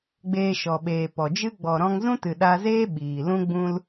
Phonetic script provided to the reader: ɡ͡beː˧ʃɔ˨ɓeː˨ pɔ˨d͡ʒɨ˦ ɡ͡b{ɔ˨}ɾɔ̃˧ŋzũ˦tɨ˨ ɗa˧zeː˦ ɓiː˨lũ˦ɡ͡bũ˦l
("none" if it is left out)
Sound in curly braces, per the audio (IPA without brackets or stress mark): ɔ˨